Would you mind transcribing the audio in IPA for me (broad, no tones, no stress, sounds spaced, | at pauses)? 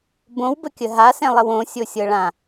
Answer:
b õ w b ə kʲ ə ɦ a s ɛ̃ lˠ ə w õ sʲ o sʲ ɤ ɭ ã